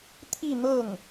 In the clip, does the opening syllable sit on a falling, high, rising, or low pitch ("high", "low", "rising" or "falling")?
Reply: falling